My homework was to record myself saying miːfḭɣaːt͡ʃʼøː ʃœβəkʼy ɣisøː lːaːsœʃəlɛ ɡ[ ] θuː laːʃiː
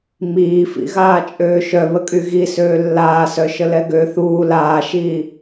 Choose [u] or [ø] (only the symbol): ø